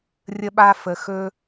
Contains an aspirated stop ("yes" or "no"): no